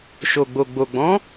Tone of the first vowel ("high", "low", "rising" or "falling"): low